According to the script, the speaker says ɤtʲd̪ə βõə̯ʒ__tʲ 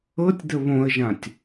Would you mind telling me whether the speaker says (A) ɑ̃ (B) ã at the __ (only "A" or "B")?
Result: B